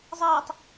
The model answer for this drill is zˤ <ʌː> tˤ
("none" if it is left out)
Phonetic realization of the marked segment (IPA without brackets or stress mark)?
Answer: ʌː